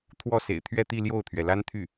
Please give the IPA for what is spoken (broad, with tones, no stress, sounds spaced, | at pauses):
t̪ʰ w ɔ˥˩ s ḛ˨˩ ɪ̯ t̪ʰ ɥ ɛ˥˧ t̪ i˥˧ l j o˥˩ ʊ̯ t̪ʰ ɥ ɛ˩ l a˥ n t̪ʰ y˥˩